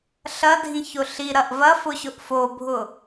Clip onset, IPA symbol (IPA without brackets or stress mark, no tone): ɬ